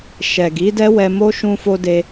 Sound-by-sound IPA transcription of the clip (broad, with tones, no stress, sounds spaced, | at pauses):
ʃ ɛ˨ ɡ i˨˦ d ɛ˦ w ɛ˧ m o˦ ʃ ũ˧ f o˧ d e˧